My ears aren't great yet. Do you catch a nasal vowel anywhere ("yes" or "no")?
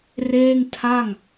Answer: no